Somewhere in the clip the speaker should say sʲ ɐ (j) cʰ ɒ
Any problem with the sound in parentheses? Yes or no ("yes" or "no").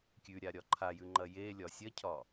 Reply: yes